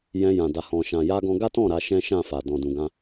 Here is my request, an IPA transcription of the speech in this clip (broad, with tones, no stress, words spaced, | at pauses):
jɛ̃˧ jã˨ da˨hɔ̃˨ʃã˨ ja˧ɡɔ̃˧ ɡa˦tɔ̃˦˨ ɾa˧ʃɛ̃˦ʃã˦˨fa˨ dɔ̃˨dũ˨ɡã˧